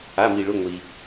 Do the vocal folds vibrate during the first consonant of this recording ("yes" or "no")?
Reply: yes